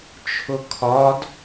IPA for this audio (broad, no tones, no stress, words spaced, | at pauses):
t͡ʃʰʊkʰɒd